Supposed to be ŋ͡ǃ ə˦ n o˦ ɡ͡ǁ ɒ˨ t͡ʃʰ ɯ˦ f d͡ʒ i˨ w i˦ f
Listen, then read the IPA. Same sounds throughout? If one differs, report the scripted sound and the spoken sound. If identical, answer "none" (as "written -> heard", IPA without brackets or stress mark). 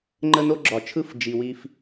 none